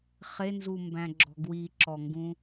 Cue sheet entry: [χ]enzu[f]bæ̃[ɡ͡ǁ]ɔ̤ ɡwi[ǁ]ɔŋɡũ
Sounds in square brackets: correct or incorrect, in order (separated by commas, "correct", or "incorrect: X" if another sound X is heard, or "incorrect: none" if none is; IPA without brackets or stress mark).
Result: correct, incorrect: m, correct, correct